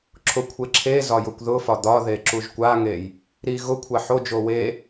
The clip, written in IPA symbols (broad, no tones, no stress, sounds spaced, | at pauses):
ǁʰ ʊ kʷʰ e ǁʰ e z ɒ j ʊ kʷ ð ʊ f ɒ d̪ ɒ ð e ǁ u ʒ kʷ a ŋ e j | ɾ i ɣ ʊ kʷʰ a ħ o d͡ʒ o w e